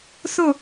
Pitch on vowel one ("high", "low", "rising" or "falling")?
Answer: falling